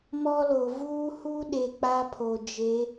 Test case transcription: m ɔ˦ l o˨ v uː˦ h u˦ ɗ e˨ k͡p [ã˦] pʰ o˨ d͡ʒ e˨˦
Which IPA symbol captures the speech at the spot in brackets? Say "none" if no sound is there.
a˦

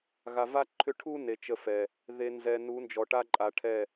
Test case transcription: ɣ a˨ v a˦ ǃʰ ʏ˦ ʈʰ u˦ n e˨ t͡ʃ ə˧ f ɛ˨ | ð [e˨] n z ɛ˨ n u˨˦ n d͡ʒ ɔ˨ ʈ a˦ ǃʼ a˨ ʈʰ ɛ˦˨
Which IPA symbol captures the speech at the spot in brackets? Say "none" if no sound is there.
e˨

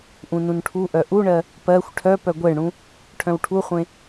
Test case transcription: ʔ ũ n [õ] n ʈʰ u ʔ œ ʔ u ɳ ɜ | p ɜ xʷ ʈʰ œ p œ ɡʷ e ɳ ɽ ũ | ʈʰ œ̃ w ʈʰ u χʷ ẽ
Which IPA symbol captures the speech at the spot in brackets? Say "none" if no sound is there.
ũ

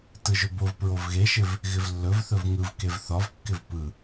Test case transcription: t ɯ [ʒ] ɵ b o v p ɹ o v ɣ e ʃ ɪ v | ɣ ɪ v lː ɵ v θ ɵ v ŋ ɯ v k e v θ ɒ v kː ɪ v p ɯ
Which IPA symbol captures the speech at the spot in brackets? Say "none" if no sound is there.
ʒ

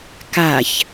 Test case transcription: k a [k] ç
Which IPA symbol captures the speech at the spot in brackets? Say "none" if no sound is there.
none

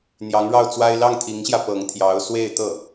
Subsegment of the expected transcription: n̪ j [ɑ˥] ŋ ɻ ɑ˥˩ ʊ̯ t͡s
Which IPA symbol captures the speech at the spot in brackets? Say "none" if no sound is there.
ɑ˧˥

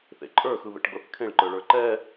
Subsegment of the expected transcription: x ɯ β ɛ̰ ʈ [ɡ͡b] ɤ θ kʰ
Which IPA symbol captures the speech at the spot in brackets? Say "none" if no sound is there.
ɡ͡b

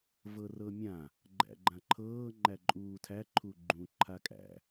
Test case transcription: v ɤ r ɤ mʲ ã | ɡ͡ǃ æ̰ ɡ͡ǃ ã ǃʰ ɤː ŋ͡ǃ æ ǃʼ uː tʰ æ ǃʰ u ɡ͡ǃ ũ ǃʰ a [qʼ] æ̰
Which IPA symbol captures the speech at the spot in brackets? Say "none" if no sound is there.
kʼ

